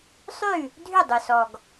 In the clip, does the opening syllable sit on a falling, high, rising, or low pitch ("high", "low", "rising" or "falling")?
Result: falling